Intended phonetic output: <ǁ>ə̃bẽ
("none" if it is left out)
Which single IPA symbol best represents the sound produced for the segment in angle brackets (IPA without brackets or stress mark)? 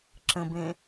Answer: ǁ